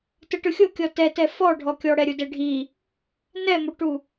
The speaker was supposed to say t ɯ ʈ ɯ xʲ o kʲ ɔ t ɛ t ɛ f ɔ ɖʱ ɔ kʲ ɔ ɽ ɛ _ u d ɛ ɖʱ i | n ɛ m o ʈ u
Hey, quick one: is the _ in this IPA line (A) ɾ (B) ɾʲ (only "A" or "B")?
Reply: B